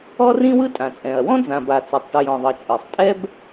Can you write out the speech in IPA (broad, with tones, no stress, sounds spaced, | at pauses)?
ɔ˥ r ĩ˥ w ɯ˥ tʼ ã˩ t͡sʼ ɛ̃˩ ɐ̯ w ɔ̃˥ d͡z ã˩ b a˩ t͡s a˩ tˤ ʈ ɯ˩ j ɔ̃˩ ðˤ ɤ˩ t͡ʃʼ ɯ˩ sˤ tʼ ɛ˥ b